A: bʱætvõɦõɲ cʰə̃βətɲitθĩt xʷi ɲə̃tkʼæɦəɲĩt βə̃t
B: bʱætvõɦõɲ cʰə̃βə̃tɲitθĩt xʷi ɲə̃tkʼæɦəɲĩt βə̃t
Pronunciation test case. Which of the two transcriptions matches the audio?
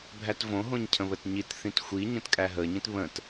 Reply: A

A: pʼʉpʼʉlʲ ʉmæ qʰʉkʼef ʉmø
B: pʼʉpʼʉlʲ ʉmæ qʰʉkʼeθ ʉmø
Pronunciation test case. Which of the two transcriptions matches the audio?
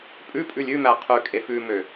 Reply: A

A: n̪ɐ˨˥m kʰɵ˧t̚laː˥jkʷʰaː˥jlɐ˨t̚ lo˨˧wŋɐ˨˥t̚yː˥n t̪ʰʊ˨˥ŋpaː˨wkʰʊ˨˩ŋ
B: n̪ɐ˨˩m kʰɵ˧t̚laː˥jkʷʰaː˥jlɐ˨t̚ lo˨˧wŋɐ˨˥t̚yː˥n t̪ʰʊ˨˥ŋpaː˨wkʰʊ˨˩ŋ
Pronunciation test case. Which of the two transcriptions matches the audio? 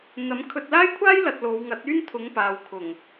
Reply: A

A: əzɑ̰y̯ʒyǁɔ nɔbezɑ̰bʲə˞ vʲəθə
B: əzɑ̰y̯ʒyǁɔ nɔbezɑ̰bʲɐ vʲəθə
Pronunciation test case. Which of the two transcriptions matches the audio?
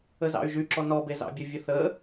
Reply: B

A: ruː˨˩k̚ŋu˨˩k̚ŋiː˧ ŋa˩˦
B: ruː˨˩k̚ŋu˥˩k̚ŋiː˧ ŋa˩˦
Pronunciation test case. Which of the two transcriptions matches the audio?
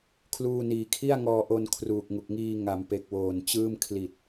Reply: A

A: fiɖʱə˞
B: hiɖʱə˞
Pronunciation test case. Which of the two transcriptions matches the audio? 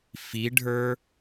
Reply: A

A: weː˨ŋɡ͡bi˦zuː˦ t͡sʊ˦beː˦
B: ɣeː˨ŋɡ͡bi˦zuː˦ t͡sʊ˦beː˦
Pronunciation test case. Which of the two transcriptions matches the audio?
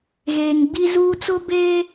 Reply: B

